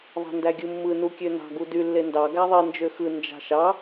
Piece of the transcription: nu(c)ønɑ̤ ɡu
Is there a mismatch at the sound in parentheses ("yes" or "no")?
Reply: yes